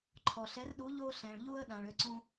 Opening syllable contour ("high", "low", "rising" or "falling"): low